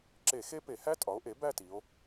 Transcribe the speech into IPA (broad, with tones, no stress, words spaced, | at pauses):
ǁe˧˩˧xe˦˥pe˧˩˧ hæ˦˥tʼɒ˩˥o̯ʔe˩˥ bæ˥˧ti˩˧o̯